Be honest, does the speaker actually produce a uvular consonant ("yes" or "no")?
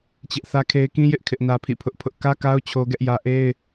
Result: no